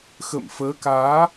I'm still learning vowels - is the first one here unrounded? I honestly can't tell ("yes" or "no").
yes